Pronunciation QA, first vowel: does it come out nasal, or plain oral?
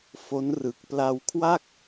oral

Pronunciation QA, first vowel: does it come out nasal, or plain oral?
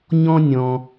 nasal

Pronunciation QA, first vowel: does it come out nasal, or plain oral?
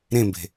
nasal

